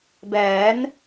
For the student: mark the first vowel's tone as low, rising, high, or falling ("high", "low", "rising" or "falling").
rising